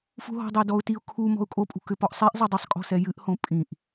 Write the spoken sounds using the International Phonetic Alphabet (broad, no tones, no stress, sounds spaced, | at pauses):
f ṳ ɦ ɔ̤ dˤ ɛ d ɔ ʊ̯ t i ʊ̯ kʰ u m ɔ̤ ʊ̯ kʼ o pʼ ṳ k ʏ p ɔ ʔ sˤ e ʔ zˤ e dˤ ʏ sˤ kʼ ɔ̤ s ɛ j ɨ ʔ h õ pʼ ĩ ʔ